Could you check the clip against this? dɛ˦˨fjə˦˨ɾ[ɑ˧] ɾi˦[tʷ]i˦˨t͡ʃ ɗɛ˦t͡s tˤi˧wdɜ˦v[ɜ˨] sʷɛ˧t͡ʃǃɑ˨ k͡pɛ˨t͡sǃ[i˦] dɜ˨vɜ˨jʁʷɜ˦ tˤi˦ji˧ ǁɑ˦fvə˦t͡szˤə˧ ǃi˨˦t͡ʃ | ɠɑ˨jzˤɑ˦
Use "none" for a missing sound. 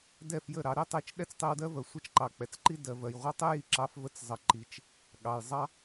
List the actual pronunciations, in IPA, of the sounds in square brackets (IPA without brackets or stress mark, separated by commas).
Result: ɑ˨˦, tˤ, ɜ˨, i˦